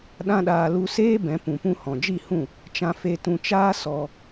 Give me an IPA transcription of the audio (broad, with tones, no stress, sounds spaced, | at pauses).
ɗ ã˦ ɗ aː˧ l u˧ s eː˦ b ɛ̃˨˦ p ũ˨ p ũ˧ h ɔ̃˨ d͡ʒ i˦˨ h ũ˦˨ | t͡ʃ ã˧ f e˧ t ũ˧ t͡ʃ aː˦ s ɔ˧